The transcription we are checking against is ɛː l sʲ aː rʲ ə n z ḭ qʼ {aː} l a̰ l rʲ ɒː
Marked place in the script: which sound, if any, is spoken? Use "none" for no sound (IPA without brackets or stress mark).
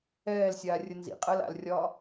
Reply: əː